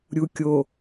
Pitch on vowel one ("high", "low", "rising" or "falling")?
low